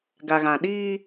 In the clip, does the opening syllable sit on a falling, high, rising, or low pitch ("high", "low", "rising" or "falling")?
low